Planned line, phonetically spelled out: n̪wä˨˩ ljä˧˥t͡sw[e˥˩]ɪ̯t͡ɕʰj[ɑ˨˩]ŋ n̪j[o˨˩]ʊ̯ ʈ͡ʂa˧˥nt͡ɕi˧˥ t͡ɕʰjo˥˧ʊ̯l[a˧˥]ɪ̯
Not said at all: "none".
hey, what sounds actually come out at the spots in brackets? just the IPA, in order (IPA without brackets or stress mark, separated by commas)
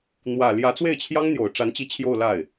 e˥˩, ɑ˥, o˨˩, a˥˩